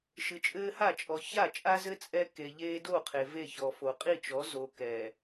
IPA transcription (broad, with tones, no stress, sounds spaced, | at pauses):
ʃ ɨ˨ t͡ʃʼ ɘː˦ h a˦˨ t͡ʃʼ ɔ˨ ç a˦˨ t͡ʃʼ a˦ z ɘ˦ t͡sʼ ɛ˦ k e˨ ʎ eː˦ d o˦˨ qʰ e˨ v e˦˨ ç ɔ˨ f o˨ qʼ i˦˨ t͡ʃ ɔ˨˦ z o˨ k ɛː˨